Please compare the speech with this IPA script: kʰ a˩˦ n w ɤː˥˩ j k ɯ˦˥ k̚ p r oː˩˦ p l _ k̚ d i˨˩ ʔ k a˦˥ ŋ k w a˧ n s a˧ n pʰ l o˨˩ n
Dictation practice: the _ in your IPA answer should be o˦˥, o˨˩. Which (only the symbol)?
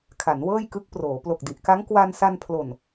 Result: o˨˩